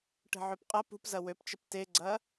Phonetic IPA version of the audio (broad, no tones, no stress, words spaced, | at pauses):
ʈə̤ʕøpqʼɐ pṳpzɐ wøpt͡ʃəp teɡ͡ǀɐ